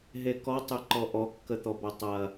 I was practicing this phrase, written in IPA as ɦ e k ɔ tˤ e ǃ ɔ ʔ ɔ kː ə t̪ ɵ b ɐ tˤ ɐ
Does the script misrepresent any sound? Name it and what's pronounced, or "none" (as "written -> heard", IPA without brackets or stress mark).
ɵ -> ɔ